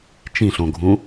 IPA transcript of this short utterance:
t͡ʃĩɬõɡʱũ

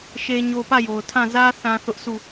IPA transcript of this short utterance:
ʃe˦ɲo˦ pä˦˨jo˨ʊ̯tʰã˦˨ zä˦ θã˦θʊ˦ʔ su˦˨

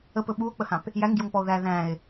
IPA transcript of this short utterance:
əpɵ ɓuo̯k͡pəhãp | jæŋɡjoŋpɔo̯ ðæ ðæ̃e̯

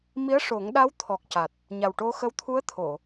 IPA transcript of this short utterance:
mi˧˥ə̯ʂo˨˩˦ŋɗa˧˥w t̪ʰɔ˨˩k̚ ca˨˩t̚ | ɲa˨˩wʈo˧xə˧˥w t̪ʰu˧˥ə̯t̪ʰo˨˩˨

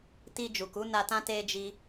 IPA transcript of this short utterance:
ti˧d͡ʒu˨ku˨˦ na˧tã˦ te˧d͡ʒi˧

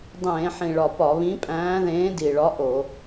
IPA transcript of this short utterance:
dˤẽː˧˩˧ħĩ˨˩ɭɒ˨˩ pɒ˧˩˧βĩ˨˥pʼæ̃ː˨˥ ðẽː˨˥di˨˩ɭɒ˨˥ ʔo˧˩˧

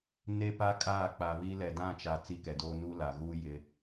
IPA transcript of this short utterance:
ne˦pa˦ kʼaː˦˨k͡pa˨βi˦ lɛ˨dã˦˨t͡ʃa˨ t͡si˦kɛ˨doː˦ nu˦la˨ ɣuː˦ jɪ˦

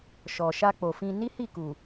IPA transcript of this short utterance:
ʃɔ˨ʃa˧k͡po˨fĩ˧ ni˦hi˦˨ ku˨

